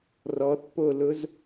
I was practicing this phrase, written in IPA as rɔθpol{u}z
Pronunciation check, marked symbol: incorrect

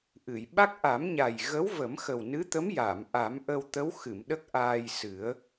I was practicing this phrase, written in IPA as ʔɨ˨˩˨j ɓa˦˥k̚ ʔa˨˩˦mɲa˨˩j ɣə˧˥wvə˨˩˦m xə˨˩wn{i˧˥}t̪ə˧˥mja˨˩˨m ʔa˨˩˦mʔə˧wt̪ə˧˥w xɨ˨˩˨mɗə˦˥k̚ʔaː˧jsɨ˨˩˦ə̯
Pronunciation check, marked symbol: incorrect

